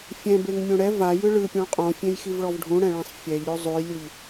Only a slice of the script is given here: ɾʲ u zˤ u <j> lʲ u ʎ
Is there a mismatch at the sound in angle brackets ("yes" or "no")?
no